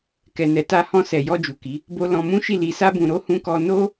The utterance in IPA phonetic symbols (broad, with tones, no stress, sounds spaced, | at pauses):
k ɛ˨ n ɛ˨ t a˧ h ɔ̃˧ s ɛ˨ j ɔ˧ d͡ʒ u˨ k i˨˦ | b o˧ l ɔ̃˧ m ũ˦ ʃ i˦˨ l i˨ s a˧ b ũ˨ ɾ o˨˦ h ũ˧ k ɔ˧ n o˦